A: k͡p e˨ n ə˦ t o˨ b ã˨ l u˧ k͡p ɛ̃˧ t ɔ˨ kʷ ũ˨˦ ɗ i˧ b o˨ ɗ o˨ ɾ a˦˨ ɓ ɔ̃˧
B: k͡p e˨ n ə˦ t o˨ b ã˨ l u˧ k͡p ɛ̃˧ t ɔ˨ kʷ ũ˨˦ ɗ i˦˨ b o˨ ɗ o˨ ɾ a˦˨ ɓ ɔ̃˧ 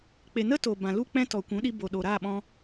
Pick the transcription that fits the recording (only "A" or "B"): A